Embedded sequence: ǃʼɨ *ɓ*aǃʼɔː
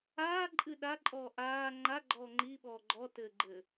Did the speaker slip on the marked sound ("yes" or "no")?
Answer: yes